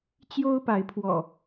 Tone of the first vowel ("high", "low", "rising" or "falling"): high